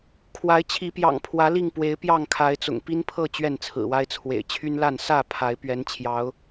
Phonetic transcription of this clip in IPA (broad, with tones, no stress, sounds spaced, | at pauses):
kʰ w a˨˦ ɪ̯ t͡ɕʰ i˨˦ p j ɑ̰˨˩ ŋ pʰ w ä˨˦ l i˥˨ ŋ p w e˨˦ ɪ̯ p j ɑ˥˨ ŋ kʰ a˨˦ ɪ̯ t͡s ʊ̰˨˩ ŋ p i˦ n pʰ ɤ˥˨ t͡ɕ ɥ ɛ˥˨ n t͡sʰ ɹ̩˨˩ w a˦ ɪ̯ t͡sʰ w ḛ˨˩ ɪ̯ t͡ɕʰ y˦ n l a˥˨ n s ä˥˨ pʰ a˨˦ ɪ̯ p ɥ ɛ˨˦ n t͡ɕʰ j ɑ˨˦ ʊ̯